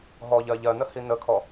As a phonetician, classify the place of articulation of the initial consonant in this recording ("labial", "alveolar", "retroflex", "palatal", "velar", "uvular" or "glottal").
glottal